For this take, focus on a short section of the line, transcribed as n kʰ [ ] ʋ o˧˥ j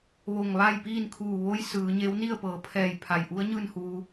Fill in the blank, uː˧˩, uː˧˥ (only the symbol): uː˧˩